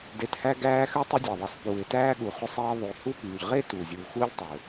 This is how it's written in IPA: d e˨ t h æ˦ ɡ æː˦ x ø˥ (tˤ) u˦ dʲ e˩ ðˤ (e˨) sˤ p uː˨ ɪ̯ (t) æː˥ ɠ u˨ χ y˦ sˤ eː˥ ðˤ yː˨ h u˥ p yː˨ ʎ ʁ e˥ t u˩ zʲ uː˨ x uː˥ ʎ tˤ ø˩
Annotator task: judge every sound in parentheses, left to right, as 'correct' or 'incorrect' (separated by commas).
correct, correct, correct